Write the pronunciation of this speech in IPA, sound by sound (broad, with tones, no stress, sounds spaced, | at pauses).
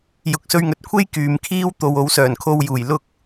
j ʊ˨˥ k̚ s ɵ˧ ɥ ŋ ɵ˨ t̚ kʷʰ e˥ j k yː˨ m kʰ iː˥ w t̪ o˨ w o˨˧ w s œː˨˩ n kʰ o˧ w j uː˨˩ j l ʊ˧ k̚